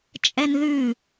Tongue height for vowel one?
mid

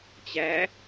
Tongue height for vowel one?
low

